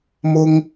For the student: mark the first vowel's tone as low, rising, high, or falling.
low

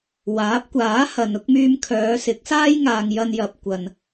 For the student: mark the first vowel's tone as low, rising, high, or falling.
rising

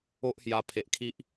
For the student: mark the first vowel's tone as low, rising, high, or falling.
high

